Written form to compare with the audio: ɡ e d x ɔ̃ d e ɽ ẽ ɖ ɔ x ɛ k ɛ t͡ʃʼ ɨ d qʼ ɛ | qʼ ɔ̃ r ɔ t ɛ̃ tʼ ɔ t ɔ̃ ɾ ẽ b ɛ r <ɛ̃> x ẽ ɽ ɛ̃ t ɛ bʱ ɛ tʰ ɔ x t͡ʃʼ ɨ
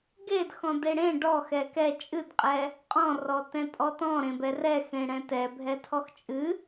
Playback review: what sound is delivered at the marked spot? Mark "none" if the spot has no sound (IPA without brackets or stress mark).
ɛ